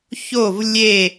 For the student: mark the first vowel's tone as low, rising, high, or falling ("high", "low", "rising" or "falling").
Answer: falling